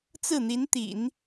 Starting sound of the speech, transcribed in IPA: t͡s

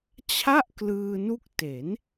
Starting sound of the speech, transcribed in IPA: t͡ɕʰ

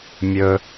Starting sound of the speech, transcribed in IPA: mʲ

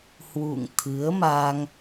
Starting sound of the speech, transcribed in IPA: h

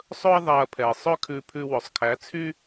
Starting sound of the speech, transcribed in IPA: sˤ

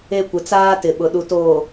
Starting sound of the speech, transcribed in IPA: e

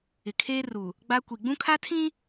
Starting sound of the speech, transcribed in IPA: ɪ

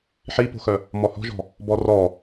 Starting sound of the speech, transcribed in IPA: ħ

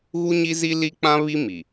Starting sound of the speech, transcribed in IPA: ɣ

